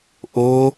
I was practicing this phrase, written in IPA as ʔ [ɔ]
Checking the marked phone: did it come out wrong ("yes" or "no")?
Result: yes